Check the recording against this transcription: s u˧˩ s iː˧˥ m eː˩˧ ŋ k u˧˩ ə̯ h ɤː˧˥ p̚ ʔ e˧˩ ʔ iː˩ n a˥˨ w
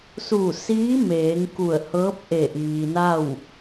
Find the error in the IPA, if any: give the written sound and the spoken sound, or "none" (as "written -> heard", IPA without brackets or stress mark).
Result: none